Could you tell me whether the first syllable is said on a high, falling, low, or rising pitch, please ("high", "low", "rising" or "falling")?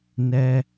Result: high